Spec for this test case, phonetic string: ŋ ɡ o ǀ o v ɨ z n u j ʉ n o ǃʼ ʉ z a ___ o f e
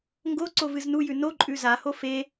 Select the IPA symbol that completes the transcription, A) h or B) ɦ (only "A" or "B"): A